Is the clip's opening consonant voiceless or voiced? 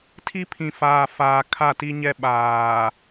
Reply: voiceless